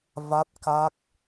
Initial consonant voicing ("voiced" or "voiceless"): voiced